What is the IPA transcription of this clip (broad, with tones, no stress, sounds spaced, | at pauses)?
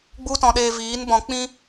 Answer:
ɡ͡b u˦ t ɔ̃˧ ɗ eː˧ v iː˨˦ n b ɔ̃˨ k͡p ĩ˧